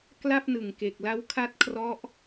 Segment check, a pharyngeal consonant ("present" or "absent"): absent